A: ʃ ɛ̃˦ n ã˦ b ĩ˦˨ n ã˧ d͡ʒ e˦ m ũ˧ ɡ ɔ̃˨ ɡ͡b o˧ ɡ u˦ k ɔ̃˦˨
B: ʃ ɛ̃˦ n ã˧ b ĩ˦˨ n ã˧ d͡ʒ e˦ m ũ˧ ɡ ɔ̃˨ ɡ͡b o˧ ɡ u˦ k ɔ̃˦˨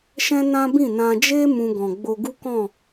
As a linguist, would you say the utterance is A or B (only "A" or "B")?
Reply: A